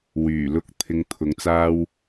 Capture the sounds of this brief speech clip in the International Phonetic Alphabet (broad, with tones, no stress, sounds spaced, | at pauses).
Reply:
w yː˨˩ l ʊ˨˥ k̚ t̪ʰ ɪ˧ ŋ t̪ʰ ʊ˨˧ ŋ t͡s aː˧ w